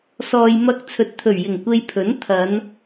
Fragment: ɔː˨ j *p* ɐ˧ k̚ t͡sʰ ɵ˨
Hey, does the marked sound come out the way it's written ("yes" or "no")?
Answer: no